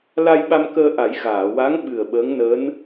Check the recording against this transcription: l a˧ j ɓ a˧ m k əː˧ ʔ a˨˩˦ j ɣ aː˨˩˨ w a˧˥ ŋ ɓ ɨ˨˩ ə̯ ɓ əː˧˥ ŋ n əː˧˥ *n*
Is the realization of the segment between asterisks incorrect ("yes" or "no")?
no